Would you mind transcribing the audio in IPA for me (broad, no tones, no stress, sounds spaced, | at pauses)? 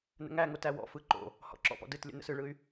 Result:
n ə̰ ŋ æ ŋ o t æ w ɔ̰ f ɯ ǃ o̰ | h ɔ̰ ǁ ɔ̰ p ɔ̰ d ɯ t lʲ ə̰ n ə̰ s ɯ ɭ ɯ y̯